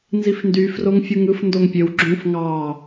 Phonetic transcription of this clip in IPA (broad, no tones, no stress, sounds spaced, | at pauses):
n z i f n d y f r o ŋ fʲ u ŋ ɯ f n d o ŋ pʲ ø w ɡ͡ǁ ũ f ŋ ɑ